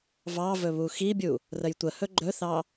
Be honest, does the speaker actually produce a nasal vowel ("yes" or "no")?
no